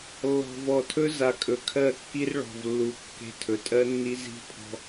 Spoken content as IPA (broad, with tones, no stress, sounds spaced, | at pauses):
lː ɔ̤˨ v ɔ˨ tʰ ɵ˦ z a˨ kʼ ɵ˨ kʰ ɜ˦˨ kː i˦ r ɭ ɔ̤˨ v lː u˨ kː e̤˦ tʰ ɵ˨ tʼ ɜ˦ nː i˦ z i̤˦ pʰ ɔ̤˦